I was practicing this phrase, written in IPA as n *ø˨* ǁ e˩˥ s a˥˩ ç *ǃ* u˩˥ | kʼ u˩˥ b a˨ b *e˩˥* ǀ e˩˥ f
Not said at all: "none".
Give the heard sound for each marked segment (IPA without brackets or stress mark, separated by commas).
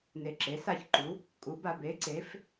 e˨, ǃ, e˩˥